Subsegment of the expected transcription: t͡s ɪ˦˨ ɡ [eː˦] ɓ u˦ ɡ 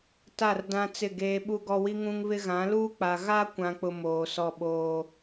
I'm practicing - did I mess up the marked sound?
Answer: no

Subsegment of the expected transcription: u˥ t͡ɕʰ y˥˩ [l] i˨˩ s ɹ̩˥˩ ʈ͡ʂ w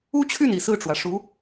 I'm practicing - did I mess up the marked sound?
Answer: yes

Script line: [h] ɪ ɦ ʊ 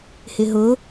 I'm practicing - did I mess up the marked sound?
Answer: no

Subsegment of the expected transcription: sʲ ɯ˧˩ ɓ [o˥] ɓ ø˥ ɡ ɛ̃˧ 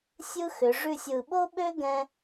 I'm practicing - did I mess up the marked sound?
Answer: no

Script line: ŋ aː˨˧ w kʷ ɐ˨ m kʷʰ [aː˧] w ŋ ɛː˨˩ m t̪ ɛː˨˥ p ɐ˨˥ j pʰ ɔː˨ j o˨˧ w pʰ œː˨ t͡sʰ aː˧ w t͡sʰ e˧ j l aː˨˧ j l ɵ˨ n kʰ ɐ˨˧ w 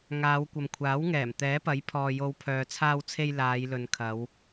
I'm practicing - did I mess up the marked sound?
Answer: yes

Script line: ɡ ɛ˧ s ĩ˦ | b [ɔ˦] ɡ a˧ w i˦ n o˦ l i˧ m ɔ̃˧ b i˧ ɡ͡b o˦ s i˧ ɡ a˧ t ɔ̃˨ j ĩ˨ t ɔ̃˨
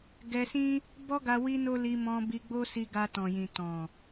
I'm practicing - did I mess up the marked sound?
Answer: no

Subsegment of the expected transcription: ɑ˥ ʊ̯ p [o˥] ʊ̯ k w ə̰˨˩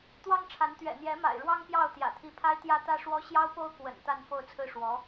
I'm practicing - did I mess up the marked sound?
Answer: no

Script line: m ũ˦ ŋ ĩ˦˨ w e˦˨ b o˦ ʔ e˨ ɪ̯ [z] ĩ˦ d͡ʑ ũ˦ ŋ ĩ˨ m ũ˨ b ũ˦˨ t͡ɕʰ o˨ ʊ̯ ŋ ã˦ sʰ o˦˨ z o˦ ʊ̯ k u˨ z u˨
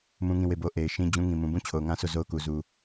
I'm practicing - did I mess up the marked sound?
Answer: yes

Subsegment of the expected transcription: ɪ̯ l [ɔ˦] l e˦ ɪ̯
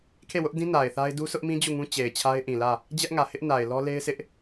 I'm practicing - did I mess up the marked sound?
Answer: no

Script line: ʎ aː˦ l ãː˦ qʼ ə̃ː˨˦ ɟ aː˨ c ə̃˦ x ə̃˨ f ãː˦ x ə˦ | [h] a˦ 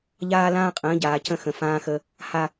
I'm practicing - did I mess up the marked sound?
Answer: no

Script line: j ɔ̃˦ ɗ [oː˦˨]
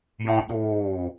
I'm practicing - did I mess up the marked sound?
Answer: no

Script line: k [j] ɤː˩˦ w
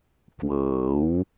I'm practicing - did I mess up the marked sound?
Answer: yes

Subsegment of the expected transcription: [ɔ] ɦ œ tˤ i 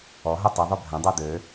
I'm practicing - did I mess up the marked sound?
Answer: no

